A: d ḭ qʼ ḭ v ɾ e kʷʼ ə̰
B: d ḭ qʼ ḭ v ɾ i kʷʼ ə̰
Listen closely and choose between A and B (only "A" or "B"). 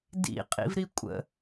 B